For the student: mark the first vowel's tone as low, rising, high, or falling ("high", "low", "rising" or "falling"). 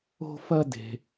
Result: high